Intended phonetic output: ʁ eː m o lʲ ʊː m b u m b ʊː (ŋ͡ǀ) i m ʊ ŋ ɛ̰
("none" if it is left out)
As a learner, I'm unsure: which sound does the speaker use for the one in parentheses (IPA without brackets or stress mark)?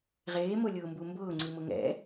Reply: ŋ͡ǀ